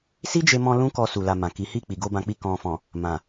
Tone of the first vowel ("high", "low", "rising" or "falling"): high